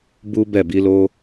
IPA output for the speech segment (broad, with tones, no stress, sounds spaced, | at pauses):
b u˦ b ɛ˦˨ b i˨˦ l o˦